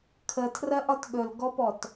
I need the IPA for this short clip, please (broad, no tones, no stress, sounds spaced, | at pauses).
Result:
kʰ ə tʰ r ɜ ʔ ɒ t ɠ ɵ l ɡ ɔ p ɔ t